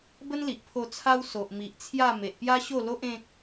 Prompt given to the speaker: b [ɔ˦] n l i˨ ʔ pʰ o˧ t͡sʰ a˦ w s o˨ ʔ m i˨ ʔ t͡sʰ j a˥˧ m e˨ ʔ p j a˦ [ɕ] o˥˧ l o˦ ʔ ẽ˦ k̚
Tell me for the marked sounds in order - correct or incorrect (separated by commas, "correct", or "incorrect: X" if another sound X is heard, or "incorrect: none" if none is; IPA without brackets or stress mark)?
incorrect: ə˦, correct